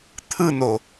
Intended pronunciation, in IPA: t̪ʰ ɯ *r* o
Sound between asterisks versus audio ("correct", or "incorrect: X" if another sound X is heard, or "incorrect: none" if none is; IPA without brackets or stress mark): incorrect: n̪